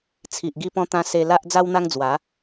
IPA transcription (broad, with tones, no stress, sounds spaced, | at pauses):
t͡sʰ i˨ ʔ ɡ i˧ p ɔ̃˧ t̪ ã˧ s e˧ l a˦ ʔ d͡z a˦ w n̪ a˦ ŋ d͡z w a˨˦